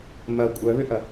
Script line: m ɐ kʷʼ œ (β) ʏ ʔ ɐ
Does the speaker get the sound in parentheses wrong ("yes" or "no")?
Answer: no